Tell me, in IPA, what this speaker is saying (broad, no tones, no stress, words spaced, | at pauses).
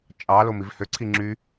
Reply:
t͡ʃʼɑlom ivhøǀʰi ŋ͡ǁy